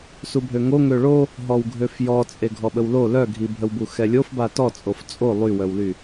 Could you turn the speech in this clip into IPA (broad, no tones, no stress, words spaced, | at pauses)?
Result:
subʱøŋo ŋøɭo | ɦɔwɡʱøfjɔ t͡sʼeɡʱɔɓəwlo lœɡʱibʱəwbu xɛlʲofba tɔt͡sʼof t͡sʼo lˠywœwly